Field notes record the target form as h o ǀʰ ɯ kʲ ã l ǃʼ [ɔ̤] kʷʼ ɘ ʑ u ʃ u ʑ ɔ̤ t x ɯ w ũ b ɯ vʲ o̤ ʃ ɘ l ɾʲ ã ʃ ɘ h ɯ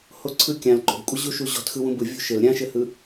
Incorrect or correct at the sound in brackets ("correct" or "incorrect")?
incorrect